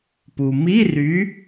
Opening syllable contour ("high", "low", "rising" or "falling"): low